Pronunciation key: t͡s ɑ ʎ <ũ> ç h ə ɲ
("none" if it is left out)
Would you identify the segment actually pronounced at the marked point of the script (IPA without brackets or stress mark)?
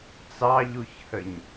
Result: u